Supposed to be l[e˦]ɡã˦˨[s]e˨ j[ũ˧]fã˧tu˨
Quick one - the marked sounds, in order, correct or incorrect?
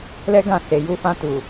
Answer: incorrect, correct, incorrect

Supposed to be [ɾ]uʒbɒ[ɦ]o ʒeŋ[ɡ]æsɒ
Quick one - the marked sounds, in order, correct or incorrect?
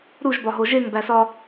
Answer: correct, correct, incorrect

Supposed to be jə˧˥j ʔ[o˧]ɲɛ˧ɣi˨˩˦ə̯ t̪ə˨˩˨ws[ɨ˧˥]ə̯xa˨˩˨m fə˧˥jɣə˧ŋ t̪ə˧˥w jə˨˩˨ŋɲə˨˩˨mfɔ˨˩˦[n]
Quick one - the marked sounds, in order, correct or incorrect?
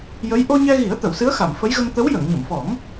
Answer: correct, correct, incorrect

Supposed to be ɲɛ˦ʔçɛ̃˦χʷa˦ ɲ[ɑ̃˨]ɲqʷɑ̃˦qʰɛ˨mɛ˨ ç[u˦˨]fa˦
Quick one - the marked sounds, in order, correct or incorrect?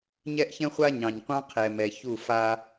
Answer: correct, correct

